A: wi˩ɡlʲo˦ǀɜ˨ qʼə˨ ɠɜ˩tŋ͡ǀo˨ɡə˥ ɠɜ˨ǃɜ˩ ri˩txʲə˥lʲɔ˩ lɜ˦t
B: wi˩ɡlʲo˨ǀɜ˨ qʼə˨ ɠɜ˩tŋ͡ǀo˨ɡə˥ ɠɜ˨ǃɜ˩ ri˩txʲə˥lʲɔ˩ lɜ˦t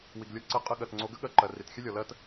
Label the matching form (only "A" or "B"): B